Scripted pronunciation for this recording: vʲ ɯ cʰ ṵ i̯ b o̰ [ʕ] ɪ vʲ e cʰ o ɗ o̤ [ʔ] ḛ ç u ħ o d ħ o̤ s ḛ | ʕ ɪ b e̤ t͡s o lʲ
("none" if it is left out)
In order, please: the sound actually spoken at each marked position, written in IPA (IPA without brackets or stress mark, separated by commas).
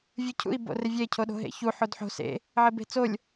r, ɦ